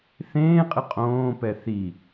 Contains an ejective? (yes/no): yes